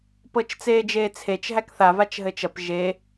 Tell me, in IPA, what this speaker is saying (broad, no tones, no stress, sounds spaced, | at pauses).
p ɤ t͡ʃ t͡s eː d͡ʒ eː t͡sʰ e t͡ʃ ɦ æ k θ a v a t͡ʃ ɦ ɘ t͡ʃ ɐ p ʒ e